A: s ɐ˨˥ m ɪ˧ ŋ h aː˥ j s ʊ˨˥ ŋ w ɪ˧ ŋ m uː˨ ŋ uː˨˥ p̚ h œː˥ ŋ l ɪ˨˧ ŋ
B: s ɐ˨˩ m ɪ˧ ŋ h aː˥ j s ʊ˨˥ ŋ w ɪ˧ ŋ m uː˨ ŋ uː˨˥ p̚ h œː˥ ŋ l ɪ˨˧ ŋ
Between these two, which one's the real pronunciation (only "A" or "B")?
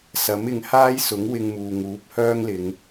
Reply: A